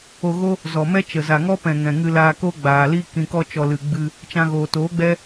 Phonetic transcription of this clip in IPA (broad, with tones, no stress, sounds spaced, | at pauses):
o˧ ɣ o˦ | z ɔ˨ m ɛ˦ t͡ʃ ə˨ z a˨ ŋ ɔ˦ p ɛ̃˨ ŋ ɛ̃˨ ŋ ɨ˧ l aː˧ k o˦ ɡ͡b aː˨ l i˦ k ĩ˨ k ɔ˧ t͡ʃ ɔ˨ l ɨ˨ ɡ͡b ɨ˧ | t͡ʃ ã˧ ɣ oː˨ t oː˨˦ ɡ͡b ɛ˦